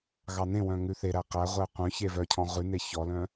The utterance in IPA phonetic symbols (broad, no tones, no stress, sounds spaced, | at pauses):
ɣ ɑ n ẽ w œ̃ ŋ ʉ θ e ɾ æ q æ ʁʷ ɛ qʷ œ̃ ç e v œ cʰ ɔ̃ ʁ ʉ n e ç ɔ l œ̃